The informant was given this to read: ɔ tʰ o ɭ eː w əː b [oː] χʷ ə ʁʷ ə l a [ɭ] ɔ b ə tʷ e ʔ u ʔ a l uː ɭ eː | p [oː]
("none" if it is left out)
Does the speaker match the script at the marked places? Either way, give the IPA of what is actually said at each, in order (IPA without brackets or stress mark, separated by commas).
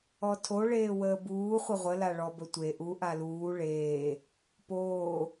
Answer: uː, ɭ, oː